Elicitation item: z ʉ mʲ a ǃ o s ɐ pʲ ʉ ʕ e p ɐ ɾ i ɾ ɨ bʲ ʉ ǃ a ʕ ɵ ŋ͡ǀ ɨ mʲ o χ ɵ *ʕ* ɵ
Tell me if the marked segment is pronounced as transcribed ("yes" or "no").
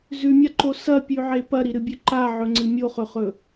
no